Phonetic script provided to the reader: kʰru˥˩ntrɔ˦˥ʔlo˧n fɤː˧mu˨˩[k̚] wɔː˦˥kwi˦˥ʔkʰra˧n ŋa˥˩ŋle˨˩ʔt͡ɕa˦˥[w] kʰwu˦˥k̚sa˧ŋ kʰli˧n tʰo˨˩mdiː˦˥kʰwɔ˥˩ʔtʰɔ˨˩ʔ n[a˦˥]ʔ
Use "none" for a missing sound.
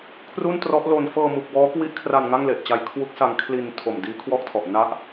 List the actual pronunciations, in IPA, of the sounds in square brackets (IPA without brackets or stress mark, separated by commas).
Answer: k̚, j, a˦˥